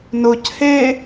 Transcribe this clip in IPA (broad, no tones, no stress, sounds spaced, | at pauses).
n ʊ c h e